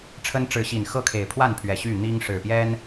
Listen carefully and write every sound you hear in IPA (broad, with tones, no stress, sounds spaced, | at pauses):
ʈ͡ʂʰ ə˦ n ʈ͡ʂ ɻ̩˨˦ ɕ i˨˩ n x ɤ˥˨ kʰ e˨˩ ɪ̯ pʰ w a˥˨ n pʰ ɥ ɛ˨˩ ɕ y˥˨ n̪ i˦ ŋ ʂ ɻ̩˨˩ p j ɛ˦ n